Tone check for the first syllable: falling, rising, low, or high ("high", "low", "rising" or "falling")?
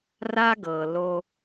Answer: high